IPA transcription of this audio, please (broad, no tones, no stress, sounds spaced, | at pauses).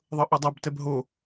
ðˤ ɤ ʔ o dˤ ɐ b t ɛ b ɦ o